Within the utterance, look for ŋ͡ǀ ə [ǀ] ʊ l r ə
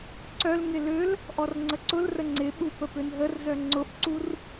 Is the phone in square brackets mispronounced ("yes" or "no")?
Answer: no